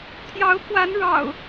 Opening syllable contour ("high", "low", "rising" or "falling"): rising